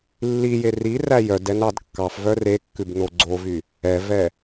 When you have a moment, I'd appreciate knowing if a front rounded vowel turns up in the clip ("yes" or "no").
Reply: yes